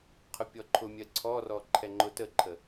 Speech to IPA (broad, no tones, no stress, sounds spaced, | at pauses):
qʰ ʊ pʲ ɔ ǃʰ ʊ mʲ ɜ ǀʰ ɔ r ɔ ǃʰ ɛ ŋ͡ǃ ʊ t ə ǃʰ ə